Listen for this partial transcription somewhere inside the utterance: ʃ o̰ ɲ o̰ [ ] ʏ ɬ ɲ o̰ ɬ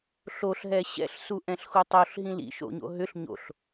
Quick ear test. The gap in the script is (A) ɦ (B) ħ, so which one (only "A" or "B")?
A